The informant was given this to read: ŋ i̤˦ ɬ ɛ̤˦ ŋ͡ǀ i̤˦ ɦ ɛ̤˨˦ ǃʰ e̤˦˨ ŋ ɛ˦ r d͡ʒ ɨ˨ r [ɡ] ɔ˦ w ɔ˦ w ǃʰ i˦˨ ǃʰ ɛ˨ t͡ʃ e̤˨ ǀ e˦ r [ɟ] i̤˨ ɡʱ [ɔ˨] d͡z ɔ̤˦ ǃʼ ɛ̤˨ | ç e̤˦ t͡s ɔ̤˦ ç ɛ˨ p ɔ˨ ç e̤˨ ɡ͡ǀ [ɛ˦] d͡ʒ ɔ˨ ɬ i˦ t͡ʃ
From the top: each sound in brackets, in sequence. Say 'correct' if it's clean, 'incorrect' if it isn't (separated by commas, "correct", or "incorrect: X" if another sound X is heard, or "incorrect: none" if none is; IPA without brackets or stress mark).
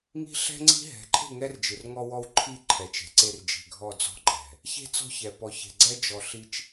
incorrect: ŋ, incorrect: d͡ʒ, incorrect: ɔ˦˨, correct